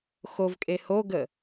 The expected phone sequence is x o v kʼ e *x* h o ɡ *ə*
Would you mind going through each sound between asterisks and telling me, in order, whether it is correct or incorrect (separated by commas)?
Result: incorrect, correct